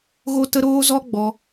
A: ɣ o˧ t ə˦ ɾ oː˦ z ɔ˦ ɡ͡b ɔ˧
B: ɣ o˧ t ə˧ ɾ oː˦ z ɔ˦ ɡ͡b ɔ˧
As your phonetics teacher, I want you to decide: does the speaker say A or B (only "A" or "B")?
B